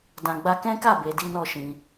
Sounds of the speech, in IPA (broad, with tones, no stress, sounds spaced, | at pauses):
d ã˨ ɡ͡b a˧ k ɛ̃˦ k a˦˨ b e˧ d i˦ n ɔ˦˨ ʃ ĩ˧